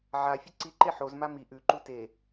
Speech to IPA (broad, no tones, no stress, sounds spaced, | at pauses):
ʕ a fʲ ɵ ǀ i ǃ e ħ o z m a m i ʔ ʉ ǃ u t e